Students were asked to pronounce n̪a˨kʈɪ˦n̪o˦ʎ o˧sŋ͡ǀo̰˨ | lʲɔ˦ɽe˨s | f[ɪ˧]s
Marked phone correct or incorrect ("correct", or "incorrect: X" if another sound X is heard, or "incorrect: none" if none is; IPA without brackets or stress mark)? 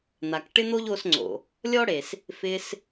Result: correct